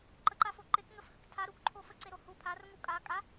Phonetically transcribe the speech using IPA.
ǃ ə ǃ a f o ǃ e k ŋ ə f h ə k tʰ a ɾ u k ǃʰ o f ə ǀ e ɾ o h u pʰ a r ŋ u kʼ a kʼ a

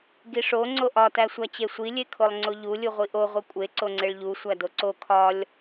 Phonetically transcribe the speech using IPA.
ɡ i ʂ o ŋ͡ǀ o ʔ ɒ t æ sʷ æ t͡ɕ e sʷ i lʲ e kʰ o lˠ ŋ͡ǀ o ʎ u lʲ u ʁʷ i ʔ o ʁʷ i kʷʼ e ǀ o ŋ͡ǀ e ɭ ʎ u sʷ æ d o ǀ o kʰ ɒ lʲ

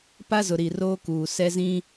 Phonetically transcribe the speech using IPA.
p a˦ z ʊ˨ ɾ i˨ r oː˦ k uː˨ s ɛ˦ z ĩ˦

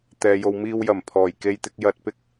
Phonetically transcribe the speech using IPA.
t̪ ɛː˨ j o˨ w m iː˧ w j ɐ˨˩ m pʰ ɔː˨˩ j k e˧ j t̪ ɪ˧ k̚ j ɐ˨˥ t̚ p ɪ˨ k̚

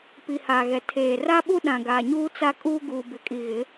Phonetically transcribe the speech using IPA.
p i˨ h aː˨ ɣ ɛ˨ tʰ eː˨ r a˦ ɓ u˦ ɗ ã˨ ɡ aː˨ ɲ uː˦ t͡s a˦ kʼ uː˦ ɡ uː˨ b ɪ˨ kʼ i˨ ɣ ɪ˨˦

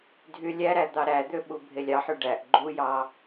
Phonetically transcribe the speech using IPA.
dʱ y lʲ æ ɾ æ d̪ ɑ ɾ æ d̪ ø ɓ u bʱ e lʲ ɑ ħ y ɖ æ ʔ ɡ͡ǃ u j ɑ

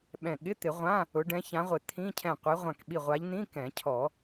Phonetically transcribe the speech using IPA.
ɓ ɛ̃˧˩ ɠ ɪ˧˥˧ t̪ ɪ˨˩˦ ʁʷ ã˧˥˧ | ʊ˨˦ ɖ ɛ̃˨˦ ç ã˨˦ ʁʷ ɪ˨˩˦ t̪ʰ ĩ˧˥˧ cʰ ɛ̃˧˩ qʷ e˨˦ ʁʷ ã˧˩ k ɓ i˧˩ ʁʷ a˨˦ ʎ n̪ ĩ˧˥˧ k ɛ̃˨˩˦ cʰ ɔ˨˩˦

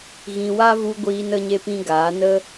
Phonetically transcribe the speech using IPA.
ɣ ĩ˧ w a˦ v u˧ ɡʷ iː˧ n ə˧ ɲ e˧ p ĩ˦ ɡ aː˨˦ n ə˦

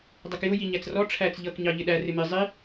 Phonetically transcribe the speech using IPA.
dˤ ɜ k j ʊ j i ɲ æ t͡s r ɔ ʈ͡ʂʰ æ t͡s ʎ ʌ k ɲ ɑ ʎ ɪ ɗ æ r ɪ m ɪ zˤ i

